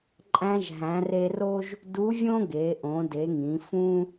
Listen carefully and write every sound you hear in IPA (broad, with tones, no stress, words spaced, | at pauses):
ǃʼæ̃˧ʒ ɦæ̃˩˧re˧ro˥ʒ | du˧˥vʲõ˥ɡe˩˧ ʔõ˩˧de˩˧ŋĩ˩˧ fũ˥